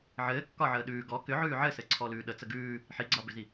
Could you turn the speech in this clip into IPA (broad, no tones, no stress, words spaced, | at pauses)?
ʕɘːkːɒʕəː ɗʉː ɡɔ kʏʕʉː ʕɘsɘǀʰɔlʉː ɗət͡sə ɡʉː | ħiɡ͡ǀɒbʏzi